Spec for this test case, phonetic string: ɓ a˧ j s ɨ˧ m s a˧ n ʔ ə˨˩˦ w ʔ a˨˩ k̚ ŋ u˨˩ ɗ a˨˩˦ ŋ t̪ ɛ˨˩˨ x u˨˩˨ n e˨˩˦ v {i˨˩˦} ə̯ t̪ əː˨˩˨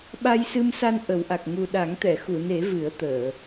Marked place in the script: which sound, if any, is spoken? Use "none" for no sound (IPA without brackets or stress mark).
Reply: ɨ˨˩˦